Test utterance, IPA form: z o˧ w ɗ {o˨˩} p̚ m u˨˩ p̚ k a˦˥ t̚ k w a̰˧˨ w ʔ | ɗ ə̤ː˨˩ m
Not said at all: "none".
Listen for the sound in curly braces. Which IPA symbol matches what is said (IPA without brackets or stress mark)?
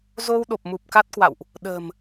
o˨˩